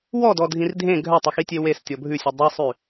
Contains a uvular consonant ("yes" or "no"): no